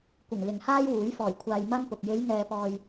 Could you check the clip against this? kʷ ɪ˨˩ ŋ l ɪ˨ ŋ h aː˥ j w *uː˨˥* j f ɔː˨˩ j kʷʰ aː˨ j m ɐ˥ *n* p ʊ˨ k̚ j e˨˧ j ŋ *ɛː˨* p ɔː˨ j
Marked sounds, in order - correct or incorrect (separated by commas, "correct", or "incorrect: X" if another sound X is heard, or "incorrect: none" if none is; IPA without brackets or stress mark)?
correct, correct, correct